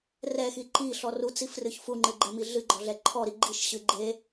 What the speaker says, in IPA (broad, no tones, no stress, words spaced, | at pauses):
rɛxi ǃiɬɔ rut͡sifrɨç fuŋ͡ǃɨɡ͡ǃɛmi ɮɨɡ͡ǃɔɮɛ ǃʰɔɾi ɡ͡ǃiʃɕɨ ɡ͡ǃe